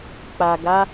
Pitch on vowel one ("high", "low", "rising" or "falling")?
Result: low